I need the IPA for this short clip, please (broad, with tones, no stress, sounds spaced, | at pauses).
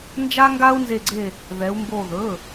n d͡ʒ a˧ ŋ ɡ a˧ u̯ n z e˧˩ ɡ͡ǀ e˧˩ | ð ɛ˩˧ u̯ m b o˧˩ ð ɵ˩˧˩